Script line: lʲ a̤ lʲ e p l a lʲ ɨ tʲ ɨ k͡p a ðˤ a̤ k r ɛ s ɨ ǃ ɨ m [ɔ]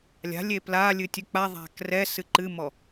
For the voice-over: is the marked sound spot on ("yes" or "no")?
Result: yes